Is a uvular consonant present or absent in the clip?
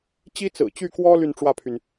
absent